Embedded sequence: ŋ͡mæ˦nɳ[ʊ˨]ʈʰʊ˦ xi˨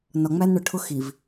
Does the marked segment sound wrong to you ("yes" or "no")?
no